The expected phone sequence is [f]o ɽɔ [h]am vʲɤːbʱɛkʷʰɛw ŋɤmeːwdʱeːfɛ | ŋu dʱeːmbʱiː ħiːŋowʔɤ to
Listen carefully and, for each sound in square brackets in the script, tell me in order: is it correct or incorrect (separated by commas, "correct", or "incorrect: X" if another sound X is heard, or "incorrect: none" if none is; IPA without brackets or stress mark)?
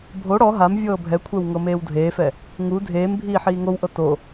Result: incorrect: bʱ, incorrect: ɦ